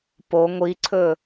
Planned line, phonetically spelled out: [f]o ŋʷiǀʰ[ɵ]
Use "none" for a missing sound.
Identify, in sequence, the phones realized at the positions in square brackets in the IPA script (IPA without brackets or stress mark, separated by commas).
p, ɵ